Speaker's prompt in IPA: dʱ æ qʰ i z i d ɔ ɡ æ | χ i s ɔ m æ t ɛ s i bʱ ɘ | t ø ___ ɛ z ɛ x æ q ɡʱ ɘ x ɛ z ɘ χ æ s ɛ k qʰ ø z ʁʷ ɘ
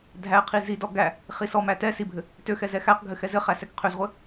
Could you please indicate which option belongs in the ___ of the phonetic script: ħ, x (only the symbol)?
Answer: x